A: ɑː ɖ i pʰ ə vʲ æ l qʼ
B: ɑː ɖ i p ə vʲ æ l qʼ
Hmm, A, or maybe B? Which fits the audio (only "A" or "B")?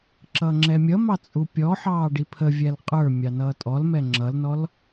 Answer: A